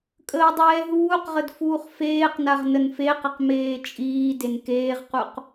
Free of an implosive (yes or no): yes